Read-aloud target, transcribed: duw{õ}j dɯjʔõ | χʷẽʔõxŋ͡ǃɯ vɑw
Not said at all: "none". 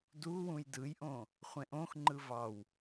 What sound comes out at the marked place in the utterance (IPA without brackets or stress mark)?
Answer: ũ